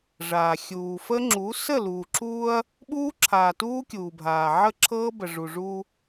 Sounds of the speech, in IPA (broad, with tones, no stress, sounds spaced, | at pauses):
ʐ aː˨ xʲ uː˨ f ə˦ ŋ͡ǁ u˨˦ s ə˦˨ l uː˨ ǁ uː˦ ɐ̯ | ɓ uː˦ ǁʰ aː˨ t uː˦ kʲ uː˨ bʱ aː˨ ʕ ə˦˨ ǁʰ ɤː˦ b ə˨ ʐ u˨ ʐ uː˦